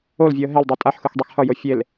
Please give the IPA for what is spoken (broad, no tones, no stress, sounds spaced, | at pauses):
o l vʲ u ə̯ ɦ ɛ l dˤ i tʼ a ħ x ɯ x dˤ e x h ʌ j o fʲ e l